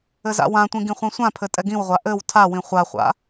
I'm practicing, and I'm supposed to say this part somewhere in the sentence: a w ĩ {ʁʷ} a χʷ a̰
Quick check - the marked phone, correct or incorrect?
incorrect